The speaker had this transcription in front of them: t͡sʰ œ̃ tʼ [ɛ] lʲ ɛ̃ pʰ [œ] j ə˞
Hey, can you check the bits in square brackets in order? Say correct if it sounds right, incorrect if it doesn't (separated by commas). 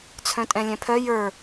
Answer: incorrect, correct